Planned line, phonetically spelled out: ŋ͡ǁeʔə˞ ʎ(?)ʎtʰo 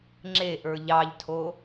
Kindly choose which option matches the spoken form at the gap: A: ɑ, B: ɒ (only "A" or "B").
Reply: A